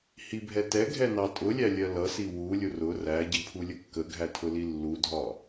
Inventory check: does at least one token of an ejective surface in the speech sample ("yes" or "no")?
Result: yes